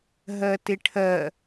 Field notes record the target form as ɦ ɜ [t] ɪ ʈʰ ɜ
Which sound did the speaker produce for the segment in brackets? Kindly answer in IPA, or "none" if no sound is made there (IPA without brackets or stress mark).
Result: t